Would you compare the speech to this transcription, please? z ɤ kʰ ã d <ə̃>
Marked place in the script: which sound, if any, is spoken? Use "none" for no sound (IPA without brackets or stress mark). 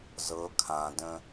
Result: ə̃